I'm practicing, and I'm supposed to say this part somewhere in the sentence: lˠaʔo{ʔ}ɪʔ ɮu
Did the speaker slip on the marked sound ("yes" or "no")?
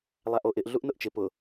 no